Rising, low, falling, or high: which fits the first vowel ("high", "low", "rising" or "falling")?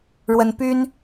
high